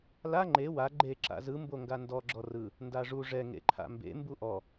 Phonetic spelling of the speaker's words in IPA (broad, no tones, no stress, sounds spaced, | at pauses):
l a ŋ͡ǃ e w a ɡ͡ǃ e ǁ a̰ z ɯ m b o ŋ ɡ a n d ɔ ɡ͡ǁ ɔ r ɯ | n d a ʐ u ʐ ɛ ŋ ḛ ǃʰ a̰ m b ḛ m b u ʔ ɔ